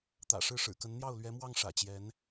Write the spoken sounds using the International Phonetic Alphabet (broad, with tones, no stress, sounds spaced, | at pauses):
t̪ ä̰˨˩ ʂ ɻ̩˥˩ ʂ ɻ̩˨˩ k ə˧˥ n n̪ j ɑ˥˩ ʊ̯ l ɥ ɛ˧˥ m w ɑ˥˩ ŋ ʂ ä̰˨˩ t͡ɕ j ɛ˧˥ n